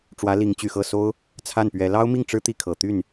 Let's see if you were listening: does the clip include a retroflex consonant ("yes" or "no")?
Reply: yes